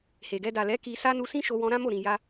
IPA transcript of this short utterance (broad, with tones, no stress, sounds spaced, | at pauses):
h e˨ ɡ ɛ˧ d a˨ l ɛ˨˦ k i˧ s a˦ n u˧ s ĩ˦ ʃ o˧ w ɔ̃˧ ɾ ã˦ m o˦˨ ɾ ĩ˨ j a˧